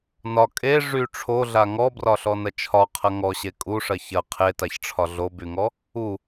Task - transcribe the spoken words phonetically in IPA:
n ɒ kʼ e ʐ y ʈ͡ʂʰ o ɮ a ŋ ɔ b r ɒ ɬ ɔ n ɐ t͡ʃʰ ɒ qʰ ɐ ŋ ɔ ɕ e kʼ u ʂ ɐ ç ɐ qʰ e t a ç ʈ͡ʂʰ ɒ ɮ o b y ŋ ɔ | u

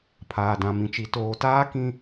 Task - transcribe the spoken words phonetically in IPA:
pʰ aː˨ d ã˨ m ĩ˨ t͡ʃ i˨ t oː˨ t aː˦ k ĩ˦

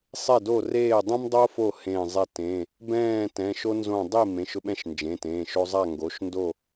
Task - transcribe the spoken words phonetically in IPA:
sˤ e˧˩ d o˧˩ r eː˧˩ dˤ ɛ̃˦ m dˤ o˦ f o˧˩ h ẽ˧˩ zˤ ɛ˦ t ẽ˩˧˩ | b ɛ̃ː˥˨ t ɛ̃˩˧˩ ʃ o˦ n z õ˧˩ dˤ i˥˨ m ẽ˩˧˩ ʃ ʊ˦ ɓ ɛ̃˥˨ ʃ n d͡ʒ ẽ˩˧˩ t ẽː˩˧˩ ʃ o˦ zˤ a˥˨ ŋ ɡ o˩˧˩ ʃ n d o˥˨

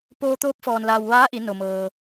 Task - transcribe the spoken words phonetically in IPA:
p oː˧ t̪ oː˧˥ p̚ f ɔː˩ n l aː˩ w ʋ aː˧˥ ʔ i˩˧ n o˩ m ɤː˩

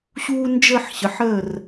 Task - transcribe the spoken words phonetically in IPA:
ɕ uː˧ n d͡ʒ ə˥˧ ħ ɕ ə˩˧ ħ əː˥˩ r

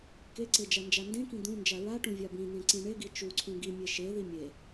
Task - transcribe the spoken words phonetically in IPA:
k e ǀ e d͡ʒ a n d͡ʒ a n d ẽ k ĩ d̪ ũ n d͡ʒ a ɹ a ʈ ũ vʲ a b ĩ n ẽ ǀ ĩ ɳ e ɡ i t͡ʃ u ǀʰ ũ ɡ i mʲ e ʃ e ð i mʲ e

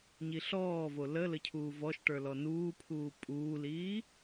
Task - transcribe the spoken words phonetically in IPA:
ɲ i ɬ ɔː v o l ə l ə cʰ uː v ɔ ʃ ʈ ə˞ l ɔ n uː pʰ uː pʼ uː l iː

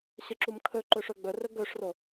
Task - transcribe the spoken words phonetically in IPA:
ɕ ə ǁ u m kʰ ɵ ǃ ɵ ʂ ɵ ɡ͡b ɵ r ɵ ɡ ɵ ʂ r o

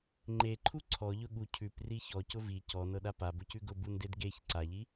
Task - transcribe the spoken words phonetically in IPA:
ŋ͡ǃ e ǃʰ u ǀʰ ɔ ʎ ʊ ɠ u cʰ ʉ p r i ç ɔ c ʊ v i c ɔ n ɤ ɗ a p a b ʊ c ʉ ɡ ʊ b u n d e d ɡ e ç ǀ a ʎ i

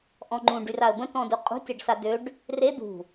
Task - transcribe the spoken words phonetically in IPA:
ʔ ɔ̃ ŋ͡ǃ ũ ɖ y r a ə̯ b ə̃ t ɔ̃ d u qʼ ṳ tʲ a ɖ s a d ø ɖ | r e d̪ ṳ

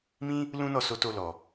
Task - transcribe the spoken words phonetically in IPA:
m ĩ˦ | l ũ˦ n ɔ˦˨ s o˧ t o˧ l ɔ˨

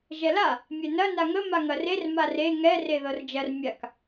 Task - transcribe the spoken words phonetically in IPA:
ʒ ɛ l a | mʲ ɛ n ɐ n a ŋ ə m a ŋ ɐ r e r m a r e ŋ ɛ r e ð ɤ r d͡ʒ ɐ r mʲ a k

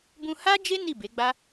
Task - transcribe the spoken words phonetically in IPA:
b ũ˧ h a˦ d͡ʒ e˦ n i˦˨ b e˨˦ ɡ͡b a˦

